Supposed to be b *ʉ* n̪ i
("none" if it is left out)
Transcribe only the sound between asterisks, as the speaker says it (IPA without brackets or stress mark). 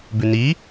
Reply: ʉ